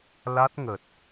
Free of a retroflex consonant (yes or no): yes